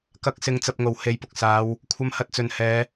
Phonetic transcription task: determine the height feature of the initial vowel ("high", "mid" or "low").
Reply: low